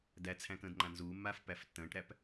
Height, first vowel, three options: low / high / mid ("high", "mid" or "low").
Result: low